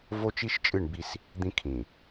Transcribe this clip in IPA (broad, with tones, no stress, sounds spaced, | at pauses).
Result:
v o˦ t͡ʃ i˦ ʃ t͡ʃʼ ɨ˦˨ ɳ b i˦ s | d̪ ĩ˦ kʰ ĩ˨